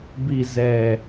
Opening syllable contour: low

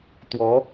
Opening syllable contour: rising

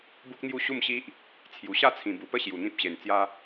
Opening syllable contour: high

